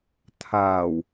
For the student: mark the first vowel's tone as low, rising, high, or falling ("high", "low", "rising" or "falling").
low